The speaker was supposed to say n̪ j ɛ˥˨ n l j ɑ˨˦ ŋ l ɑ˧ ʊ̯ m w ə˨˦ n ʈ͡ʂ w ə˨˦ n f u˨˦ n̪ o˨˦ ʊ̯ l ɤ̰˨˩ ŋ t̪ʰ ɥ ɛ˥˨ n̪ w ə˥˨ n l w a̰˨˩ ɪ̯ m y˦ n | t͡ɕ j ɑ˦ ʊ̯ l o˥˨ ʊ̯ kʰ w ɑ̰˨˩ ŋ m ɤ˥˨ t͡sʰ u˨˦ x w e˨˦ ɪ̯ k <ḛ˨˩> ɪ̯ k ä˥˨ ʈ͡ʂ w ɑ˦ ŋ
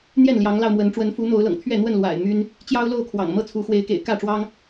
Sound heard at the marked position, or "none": ḛ˨˩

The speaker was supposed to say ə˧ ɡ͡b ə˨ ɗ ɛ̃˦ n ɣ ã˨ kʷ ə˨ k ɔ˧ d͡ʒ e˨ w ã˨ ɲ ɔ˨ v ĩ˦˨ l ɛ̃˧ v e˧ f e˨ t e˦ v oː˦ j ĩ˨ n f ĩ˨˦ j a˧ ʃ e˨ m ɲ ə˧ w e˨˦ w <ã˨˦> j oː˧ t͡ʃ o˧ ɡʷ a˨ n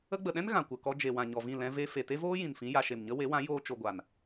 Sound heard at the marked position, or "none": ã˨˦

